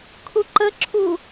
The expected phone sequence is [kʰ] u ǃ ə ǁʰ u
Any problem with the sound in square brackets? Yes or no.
no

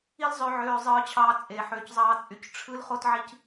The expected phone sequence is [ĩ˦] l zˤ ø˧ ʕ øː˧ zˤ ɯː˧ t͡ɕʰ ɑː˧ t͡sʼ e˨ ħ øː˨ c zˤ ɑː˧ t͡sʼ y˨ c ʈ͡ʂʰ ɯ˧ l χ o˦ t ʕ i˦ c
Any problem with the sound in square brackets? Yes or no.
yes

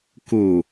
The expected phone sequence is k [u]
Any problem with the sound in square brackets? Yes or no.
no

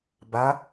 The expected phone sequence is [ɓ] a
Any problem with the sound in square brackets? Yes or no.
yes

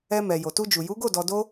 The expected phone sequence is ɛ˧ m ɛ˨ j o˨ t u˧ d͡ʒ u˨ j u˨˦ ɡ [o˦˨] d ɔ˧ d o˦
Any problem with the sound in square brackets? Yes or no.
no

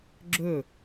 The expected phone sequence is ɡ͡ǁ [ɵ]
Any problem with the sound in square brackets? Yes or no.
no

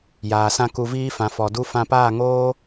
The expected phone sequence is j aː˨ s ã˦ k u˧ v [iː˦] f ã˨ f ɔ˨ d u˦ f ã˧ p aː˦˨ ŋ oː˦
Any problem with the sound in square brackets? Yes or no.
no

